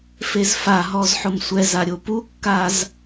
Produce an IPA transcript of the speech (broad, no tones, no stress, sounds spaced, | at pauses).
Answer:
f e z f a ɦ ɔ z ħ ʊ m sʷ ɛ z a ɾʲ o p u kː a z